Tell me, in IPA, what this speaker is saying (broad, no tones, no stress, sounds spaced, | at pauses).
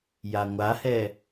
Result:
j a ŋʷ a h ɛ